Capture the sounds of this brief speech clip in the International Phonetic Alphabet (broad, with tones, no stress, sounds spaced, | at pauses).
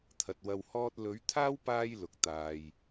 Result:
t̪ʰ ɐ˨ t̚ w ɐ˧ w h ɔː˥ t̚ l ɵ˨˥ ɥ t̪ʰ aː˥ w p aː˧ j l ʊ˨ k̚ t̪ aː˨ j